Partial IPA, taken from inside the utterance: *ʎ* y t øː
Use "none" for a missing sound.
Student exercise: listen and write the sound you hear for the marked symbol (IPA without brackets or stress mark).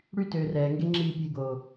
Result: ɽ